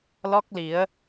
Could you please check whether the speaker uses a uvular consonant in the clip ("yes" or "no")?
no